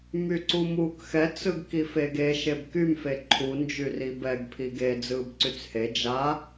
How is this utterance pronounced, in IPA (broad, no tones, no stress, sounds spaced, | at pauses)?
m y ǀ u m uː k x ɛ t͡s ɯ ɡ k i f e ɡ e ʃ e b k y m f e ǃʰ u n d͡ʒ y r i b ɛ ɡ pʰ i ɡ e d͡z ɯː b ǀ y t͡s h e d͡ʒ a